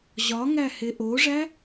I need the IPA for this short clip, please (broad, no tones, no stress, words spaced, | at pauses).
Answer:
ʑɒ ŋæheʔoʐæ